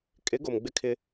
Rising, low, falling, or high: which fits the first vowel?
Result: rising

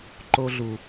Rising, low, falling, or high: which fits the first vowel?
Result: high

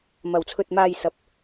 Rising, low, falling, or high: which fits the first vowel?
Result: low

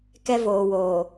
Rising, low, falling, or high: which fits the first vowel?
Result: high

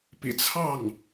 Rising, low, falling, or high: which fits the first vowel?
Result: low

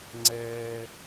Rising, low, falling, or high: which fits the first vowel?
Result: high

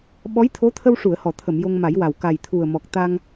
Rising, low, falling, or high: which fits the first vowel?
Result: rising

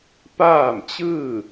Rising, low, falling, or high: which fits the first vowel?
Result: falling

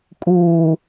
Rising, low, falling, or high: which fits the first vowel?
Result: low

